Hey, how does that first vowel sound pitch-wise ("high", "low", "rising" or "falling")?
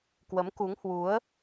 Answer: rising